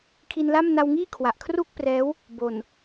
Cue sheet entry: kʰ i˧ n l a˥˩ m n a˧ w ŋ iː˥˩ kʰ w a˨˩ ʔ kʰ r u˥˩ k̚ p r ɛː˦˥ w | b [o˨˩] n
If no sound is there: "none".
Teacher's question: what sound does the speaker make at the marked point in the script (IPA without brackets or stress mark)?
o˨˩